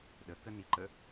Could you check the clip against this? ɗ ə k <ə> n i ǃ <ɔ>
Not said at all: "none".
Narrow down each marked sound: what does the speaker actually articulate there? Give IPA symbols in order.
ə, ə

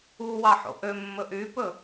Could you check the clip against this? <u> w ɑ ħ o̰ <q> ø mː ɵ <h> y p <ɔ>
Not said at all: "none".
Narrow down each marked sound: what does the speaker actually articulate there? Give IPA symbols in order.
u, ʔ, ʔ, ɵ

